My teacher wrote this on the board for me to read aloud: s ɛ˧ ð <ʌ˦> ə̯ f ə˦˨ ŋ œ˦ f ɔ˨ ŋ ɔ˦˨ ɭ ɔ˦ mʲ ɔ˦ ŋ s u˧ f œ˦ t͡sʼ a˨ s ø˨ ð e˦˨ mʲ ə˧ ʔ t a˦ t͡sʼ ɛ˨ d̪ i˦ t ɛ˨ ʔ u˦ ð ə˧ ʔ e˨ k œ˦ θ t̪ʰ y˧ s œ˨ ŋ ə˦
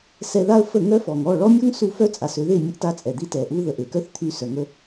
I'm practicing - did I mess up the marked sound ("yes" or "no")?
yes